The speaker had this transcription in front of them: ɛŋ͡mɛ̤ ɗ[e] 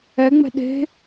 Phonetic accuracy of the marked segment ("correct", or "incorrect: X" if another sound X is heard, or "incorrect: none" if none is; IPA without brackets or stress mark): incorrect: e̤